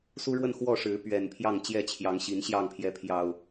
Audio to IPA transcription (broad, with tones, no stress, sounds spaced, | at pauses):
s u˦ ɻ w ə˥˨ n x w ɔ˥˨ ʂ ɻ̩˨˦ p ɥ ɛ˨˩ n pʰ j ɑ˥˨ ŋ t͡ɕ j ɛ˥˨ t͡ɕʰ j ɑ˨˦ ŋ ɕ i˨˦ n ɕ j ɑ˥˨ ŋ pʰ j ɛ˨˦ pʰ j ɑ˨˩ ʊ̯